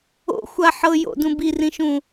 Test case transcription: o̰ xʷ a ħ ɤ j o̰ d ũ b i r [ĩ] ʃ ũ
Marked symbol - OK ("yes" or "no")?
yes